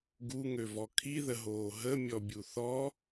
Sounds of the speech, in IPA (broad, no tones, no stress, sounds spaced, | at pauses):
ɡ u ŋ ø v ɔ kʰ i ð ə ɦ oː ɦ ə mʲ ɔ bʲ u θ ɔ